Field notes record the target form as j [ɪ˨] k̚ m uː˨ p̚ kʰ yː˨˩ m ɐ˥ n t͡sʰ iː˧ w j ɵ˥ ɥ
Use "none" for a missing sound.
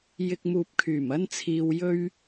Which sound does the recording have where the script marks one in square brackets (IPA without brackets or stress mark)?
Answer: ɪ˨